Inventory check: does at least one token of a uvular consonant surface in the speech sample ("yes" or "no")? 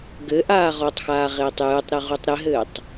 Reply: yes